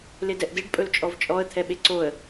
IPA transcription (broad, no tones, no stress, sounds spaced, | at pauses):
l e d ɛ ʔ d e ɖ pʼ ɵ l t͡ʃʼ ɔ v t͡ʃʼ ɔ ə̯ t̪ʰ ɛ ɓ e ǀ o ə̯